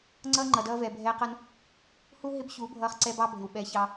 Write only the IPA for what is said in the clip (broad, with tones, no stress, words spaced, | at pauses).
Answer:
ŋ͡ǀʌː˦ŋ͡ǃʌ˨dʌː˧vɛ˨ bʱɛː˧qʌ˧n | hu˦ ɦɪ˦bçu˨˦bʱʌː˧χ ǀɛ˧ bɑ˦bʱɪ˨w ɓɛ˨˦çɑ˧